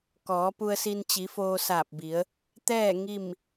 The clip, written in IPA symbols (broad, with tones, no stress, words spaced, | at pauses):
kɔː˩˧pu˧ə̯si˧n t͡ɕi˩˧foː˧saː˧˩p̚bi˩˧ə̯ | t̪ɛː˥˨ ŋi˥˨m